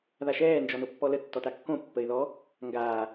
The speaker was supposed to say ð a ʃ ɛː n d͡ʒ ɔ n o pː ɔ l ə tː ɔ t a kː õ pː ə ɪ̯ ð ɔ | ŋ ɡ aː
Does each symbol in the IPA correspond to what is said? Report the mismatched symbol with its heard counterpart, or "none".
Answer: none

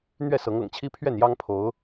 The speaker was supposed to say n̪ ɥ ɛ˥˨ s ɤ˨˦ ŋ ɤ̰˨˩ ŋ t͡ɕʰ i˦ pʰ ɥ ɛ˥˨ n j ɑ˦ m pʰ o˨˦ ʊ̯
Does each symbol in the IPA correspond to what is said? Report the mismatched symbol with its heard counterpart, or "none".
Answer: m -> ŋ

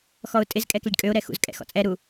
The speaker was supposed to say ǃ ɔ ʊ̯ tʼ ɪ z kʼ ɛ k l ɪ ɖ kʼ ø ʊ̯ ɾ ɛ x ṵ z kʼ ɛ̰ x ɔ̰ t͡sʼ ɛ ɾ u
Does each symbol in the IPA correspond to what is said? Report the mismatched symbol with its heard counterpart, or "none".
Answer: ǃ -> x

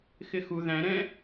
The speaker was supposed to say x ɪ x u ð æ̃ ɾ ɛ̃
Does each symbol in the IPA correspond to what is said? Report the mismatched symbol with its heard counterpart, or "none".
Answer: none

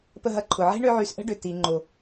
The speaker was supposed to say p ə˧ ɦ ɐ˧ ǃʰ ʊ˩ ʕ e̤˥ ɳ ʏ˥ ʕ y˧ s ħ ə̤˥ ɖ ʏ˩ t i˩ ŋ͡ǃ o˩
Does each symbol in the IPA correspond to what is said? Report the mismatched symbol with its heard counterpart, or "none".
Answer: ħ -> ʔ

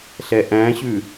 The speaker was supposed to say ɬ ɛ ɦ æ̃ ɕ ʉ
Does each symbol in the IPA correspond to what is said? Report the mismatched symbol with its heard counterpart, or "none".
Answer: ɦ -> ʔ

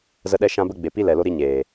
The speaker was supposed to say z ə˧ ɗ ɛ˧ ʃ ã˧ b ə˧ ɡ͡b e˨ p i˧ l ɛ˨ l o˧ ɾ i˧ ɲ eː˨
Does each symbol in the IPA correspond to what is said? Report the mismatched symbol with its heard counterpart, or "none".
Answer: none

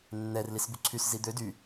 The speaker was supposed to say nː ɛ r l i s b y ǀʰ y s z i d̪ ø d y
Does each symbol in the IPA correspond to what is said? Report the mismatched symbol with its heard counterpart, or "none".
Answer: none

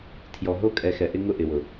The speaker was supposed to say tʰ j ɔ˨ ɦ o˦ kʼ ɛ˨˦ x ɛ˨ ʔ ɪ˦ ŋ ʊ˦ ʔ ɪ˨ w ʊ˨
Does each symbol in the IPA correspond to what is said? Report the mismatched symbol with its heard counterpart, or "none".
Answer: none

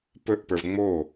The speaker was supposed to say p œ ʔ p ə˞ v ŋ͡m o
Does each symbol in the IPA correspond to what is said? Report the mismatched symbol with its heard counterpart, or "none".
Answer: œ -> ɵ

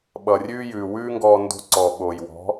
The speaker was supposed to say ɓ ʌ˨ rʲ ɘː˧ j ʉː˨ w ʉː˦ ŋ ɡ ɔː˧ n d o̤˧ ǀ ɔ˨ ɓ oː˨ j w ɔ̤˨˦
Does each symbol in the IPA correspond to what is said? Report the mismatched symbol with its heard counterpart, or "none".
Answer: ɘː˧ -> ʉː˧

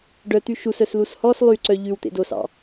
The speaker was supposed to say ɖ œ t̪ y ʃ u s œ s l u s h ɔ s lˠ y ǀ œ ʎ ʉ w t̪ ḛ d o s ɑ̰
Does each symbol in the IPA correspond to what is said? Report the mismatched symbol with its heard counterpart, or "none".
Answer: none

